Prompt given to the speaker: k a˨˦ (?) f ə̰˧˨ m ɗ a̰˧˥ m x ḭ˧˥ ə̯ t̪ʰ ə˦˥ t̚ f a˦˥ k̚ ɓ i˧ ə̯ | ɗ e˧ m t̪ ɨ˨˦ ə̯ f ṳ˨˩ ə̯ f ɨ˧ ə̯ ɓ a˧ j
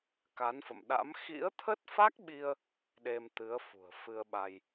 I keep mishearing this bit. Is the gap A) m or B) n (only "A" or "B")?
B